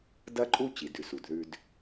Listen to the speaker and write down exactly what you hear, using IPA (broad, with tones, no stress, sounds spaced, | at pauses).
d ɐ˦ ǃʼ u˦ t͡ɕ i˨ d ʉ˨ s u˨ d ð ʉ˦ d